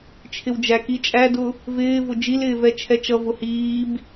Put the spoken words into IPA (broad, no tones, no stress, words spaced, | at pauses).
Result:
t͡ʃʰɪwd͡ʒæk it͡ʃʼædʊ | vɪːvʊ d͡ʒilɪːvɛ t͡ʃʰɛt͡ʃʌ vʊhiːb